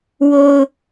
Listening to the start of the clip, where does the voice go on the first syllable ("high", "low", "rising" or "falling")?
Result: low